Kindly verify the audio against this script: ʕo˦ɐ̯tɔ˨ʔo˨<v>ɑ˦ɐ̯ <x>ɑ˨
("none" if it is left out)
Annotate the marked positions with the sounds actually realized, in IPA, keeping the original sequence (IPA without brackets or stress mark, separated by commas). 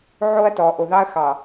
ð, x